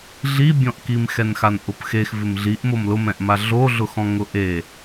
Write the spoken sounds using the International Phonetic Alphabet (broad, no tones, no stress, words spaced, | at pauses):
ɮibʲɔ̃ʔkim xɛnxanʔʊpxex vɪmɮiʔ momlʊmɛ̃ʔma ɮo ɮʊxɔ̃ŋʊʔe